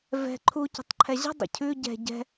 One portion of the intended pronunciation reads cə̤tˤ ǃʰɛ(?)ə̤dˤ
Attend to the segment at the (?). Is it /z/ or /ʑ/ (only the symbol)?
ʑ